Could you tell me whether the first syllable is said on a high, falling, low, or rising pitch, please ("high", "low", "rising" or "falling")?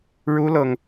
high